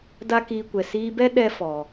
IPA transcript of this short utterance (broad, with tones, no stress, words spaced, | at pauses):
da˦kiː˧kʷɛ˨ siː˧bɛ˦ ɗɛ˦ fɔ˨